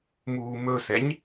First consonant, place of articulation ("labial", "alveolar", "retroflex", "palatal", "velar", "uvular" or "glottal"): labial